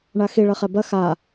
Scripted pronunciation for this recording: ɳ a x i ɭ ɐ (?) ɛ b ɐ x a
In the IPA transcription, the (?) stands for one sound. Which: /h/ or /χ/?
χ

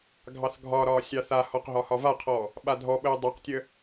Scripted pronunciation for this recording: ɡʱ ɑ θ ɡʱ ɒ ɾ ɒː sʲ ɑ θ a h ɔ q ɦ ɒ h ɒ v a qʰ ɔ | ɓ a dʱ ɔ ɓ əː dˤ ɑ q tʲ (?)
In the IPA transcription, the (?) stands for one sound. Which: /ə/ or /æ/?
ə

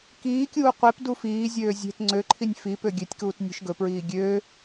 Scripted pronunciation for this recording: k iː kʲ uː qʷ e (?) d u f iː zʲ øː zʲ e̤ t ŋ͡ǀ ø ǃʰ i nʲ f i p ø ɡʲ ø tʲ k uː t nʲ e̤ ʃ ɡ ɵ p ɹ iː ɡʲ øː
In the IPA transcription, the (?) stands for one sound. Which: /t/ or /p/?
p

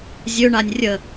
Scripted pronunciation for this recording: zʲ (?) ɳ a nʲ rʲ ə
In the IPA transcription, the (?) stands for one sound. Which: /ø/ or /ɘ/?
ø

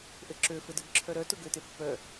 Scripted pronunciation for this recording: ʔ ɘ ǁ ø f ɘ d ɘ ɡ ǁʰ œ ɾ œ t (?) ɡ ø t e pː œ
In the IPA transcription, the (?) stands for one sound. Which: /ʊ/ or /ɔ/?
ʊ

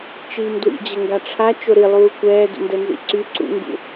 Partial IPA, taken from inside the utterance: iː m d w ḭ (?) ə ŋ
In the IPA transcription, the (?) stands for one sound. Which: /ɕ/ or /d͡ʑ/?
d͡ʑ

